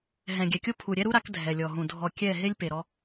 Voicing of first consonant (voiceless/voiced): voiced